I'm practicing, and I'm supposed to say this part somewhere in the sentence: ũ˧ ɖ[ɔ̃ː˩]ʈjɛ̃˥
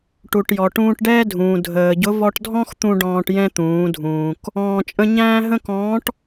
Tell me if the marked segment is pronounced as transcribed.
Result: no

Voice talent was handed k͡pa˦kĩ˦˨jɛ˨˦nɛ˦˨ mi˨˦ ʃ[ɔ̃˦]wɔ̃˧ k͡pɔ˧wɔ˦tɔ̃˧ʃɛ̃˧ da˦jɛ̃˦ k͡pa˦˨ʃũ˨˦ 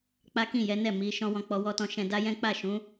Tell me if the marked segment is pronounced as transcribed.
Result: yes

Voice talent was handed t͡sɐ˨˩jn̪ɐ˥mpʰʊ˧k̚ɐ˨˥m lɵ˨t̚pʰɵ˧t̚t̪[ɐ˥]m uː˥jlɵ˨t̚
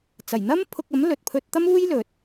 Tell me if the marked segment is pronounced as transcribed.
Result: yes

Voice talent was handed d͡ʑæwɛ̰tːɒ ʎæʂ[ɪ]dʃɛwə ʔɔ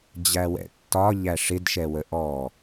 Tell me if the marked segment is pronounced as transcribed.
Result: yes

